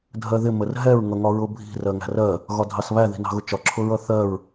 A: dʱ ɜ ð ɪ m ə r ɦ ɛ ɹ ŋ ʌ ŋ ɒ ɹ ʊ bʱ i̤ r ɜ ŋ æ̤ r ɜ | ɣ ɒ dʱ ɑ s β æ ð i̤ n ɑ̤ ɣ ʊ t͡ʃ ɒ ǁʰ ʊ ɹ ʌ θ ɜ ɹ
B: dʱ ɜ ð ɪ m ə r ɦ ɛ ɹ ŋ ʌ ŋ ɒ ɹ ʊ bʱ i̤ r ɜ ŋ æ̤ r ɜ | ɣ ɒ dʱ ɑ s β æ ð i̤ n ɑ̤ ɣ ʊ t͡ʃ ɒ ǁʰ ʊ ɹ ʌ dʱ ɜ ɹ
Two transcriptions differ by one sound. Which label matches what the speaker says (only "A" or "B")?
A